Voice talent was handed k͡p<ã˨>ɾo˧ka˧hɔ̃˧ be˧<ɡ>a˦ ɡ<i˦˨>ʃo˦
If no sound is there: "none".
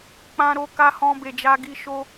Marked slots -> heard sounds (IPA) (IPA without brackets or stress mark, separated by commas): ã˧, d͡ʒ, i˦